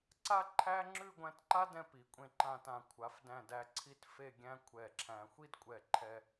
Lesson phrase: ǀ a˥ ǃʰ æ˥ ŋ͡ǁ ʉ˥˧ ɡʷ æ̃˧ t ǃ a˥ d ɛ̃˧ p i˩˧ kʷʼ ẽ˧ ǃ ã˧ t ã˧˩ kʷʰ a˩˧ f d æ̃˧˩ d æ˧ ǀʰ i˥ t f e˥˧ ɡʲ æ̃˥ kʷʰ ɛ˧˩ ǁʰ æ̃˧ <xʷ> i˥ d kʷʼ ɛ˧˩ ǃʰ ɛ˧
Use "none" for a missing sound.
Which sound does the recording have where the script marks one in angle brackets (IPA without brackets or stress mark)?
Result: xʷ